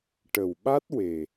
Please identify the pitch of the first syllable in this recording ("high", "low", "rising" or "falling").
low